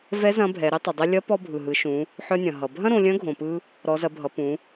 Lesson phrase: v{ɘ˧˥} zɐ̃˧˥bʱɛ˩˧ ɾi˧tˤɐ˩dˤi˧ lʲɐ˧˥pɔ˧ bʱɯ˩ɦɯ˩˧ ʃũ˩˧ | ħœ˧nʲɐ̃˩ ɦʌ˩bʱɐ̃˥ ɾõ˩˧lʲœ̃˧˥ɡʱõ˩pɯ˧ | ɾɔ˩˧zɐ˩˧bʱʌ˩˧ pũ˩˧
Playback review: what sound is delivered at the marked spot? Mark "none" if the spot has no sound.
ɛ˧˥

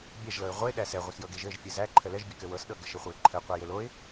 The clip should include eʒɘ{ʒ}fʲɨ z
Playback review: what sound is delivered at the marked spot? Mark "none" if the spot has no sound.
ʒ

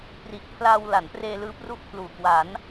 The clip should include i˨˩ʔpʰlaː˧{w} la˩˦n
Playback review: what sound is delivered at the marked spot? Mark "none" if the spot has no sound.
w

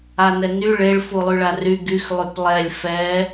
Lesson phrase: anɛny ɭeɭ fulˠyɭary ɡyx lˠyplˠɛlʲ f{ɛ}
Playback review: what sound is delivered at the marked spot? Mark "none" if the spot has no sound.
ɛ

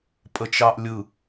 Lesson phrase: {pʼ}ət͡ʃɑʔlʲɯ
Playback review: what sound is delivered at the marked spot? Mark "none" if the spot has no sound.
pʼ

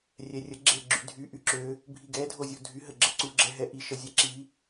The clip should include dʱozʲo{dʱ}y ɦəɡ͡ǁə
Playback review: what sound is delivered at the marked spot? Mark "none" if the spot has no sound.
dʱ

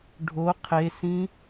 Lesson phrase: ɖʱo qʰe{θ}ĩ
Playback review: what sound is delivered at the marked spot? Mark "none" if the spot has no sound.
s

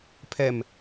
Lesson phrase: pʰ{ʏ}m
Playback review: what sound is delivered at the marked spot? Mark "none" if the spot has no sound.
ɛ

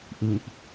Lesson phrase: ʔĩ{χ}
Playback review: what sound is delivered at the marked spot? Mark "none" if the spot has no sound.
ʔ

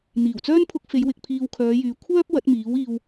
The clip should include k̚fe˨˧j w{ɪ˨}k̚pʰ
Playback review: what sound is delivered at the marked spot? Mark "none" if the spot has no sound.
ɪ˨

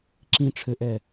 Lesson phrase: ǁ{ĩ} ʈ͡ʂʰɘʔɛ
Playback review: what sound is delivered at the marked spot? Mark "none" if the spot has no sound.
ĩ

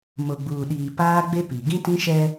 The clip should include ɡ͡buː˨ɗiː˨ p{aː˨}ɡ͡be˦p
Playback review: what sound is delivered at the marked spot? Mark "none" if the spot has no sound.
aː˦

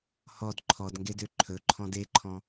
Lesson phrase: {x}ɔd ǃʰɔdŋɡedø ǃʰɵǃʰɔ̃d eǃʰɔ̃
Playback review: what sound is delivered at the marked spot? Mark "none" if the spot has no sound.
h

